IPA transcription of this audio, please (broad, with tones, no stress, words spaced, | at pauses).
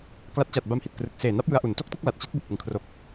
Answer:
kla˦˥t̚ t͡ɕa˨˩t̚ba˧mhi˨˩t̚ krɯ˨˩k̚ seː˨˩ na˦˥p̚jɯ˧a̯ʔu˨˩n to˥˩k̚tɯ˥˩k̚ la˨˩t̚t͡ɕi˦˥t̚ bu˨˩k̚ʔɯ˨˩ŋkʰro˨˩k̚